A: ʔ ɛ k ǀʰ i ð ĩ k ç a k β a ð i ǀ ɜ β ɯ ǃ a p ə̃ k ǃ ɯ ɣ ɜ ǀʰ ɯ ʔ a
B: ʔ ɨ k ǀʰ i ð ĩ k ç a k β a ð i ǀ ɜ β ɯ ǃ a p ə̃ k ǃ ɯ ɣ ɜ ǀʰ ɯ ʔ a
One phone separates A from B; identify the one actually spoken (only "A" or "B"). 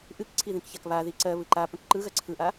B